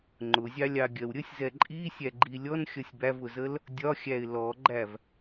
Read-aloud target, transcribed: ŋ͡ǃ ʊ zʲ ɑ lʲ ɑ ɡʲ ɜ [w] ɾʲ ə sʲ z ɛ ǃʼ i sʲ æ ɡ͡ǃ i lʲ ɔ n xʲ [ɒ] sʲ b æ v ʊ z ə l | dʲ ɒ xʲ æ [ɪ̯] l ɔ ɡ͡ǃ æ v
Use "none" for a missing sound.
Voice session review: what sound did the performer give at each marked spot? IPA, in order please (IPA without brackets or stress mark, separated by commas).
w, ʌ, ɪ̯